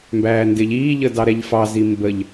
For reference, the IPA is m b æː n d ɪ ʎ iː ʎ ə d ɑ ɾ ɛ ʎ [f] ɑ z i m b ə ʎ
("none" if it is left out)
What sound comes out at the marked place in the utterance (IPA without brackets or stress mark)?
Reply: f